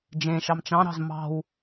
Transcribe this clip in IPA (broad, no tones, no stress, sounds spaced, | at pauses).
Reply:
d͡ʒ ẽ ʃ ɑ m t͡ʃ ɑ̃ ɾ ɑ̤ z m ɑ̤ w